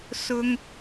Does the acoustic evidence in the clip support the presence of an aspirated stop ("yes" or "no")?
no